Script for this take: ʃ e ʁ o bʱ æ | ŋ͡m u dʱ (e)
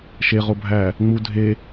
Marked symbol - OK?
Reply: yes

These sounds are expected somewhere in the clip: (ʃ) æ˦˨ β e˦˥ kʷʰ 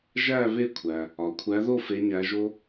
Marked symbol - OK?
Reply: no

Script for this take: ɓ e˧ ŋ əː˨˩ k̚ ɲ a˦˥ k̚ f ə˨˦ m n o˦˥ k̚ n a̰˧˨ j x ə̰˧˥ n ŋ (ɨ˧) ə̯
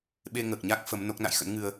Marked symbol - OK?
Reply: yes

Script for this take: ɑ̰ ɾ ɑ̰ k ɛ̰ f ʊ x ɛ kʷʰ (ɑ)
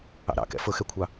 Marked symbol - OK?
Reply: yes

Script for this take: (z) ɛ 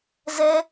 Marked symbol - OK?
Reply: yes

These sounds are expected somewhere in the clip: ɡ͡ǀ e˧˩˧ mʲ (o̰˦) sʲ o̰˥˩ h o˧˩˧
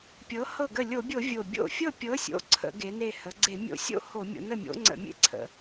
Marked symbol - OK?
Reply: yes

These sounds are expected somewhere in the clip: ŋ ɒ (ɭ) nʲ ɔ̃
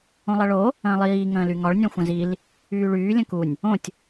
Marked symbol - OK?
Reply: yes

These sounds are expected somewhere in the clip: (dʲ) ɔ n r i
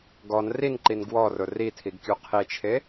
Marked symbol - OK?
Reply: no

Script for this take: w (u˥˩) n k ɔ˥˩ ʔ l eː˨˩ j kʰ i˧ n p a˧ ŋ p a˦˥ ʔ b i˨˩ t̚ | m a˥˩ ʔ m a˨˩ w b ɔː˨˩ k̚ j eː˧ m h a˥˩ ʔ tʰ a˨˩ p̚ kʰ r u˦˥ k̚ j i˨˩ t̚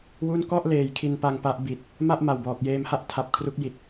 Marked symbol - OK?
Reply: yes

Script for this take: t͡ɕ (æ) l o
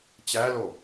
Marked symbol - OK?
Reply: yes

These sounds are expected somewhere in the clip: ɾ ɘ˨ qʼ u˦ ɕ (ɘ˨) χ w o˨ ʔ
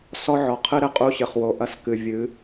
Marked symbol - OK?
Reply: yes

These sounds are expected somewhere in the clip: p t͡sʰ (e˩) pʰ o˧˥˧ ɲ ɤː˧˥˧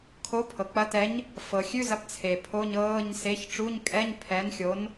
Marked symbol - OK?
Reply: yes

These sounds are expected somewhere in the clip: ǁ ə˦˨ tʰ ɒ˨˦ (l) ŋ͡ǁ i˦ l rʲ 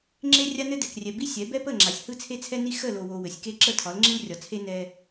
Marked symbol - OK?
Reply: yes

